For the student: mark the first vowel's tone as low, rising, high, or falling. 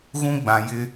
high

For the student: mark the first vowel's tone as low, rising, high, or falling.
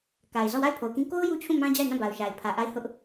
low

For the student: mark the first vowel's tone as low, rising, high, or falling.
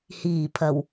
low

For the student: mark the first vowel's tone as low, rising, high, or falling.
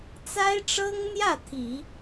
high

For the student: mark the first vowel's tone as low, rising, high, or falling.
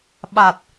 low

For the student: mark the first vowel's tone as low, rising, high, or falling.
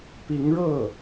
rising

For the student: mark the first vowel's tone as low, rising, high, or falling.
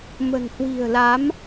low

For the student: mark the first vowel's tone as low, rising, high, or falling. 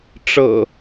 low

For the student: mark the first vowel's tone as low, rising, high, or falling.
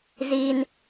high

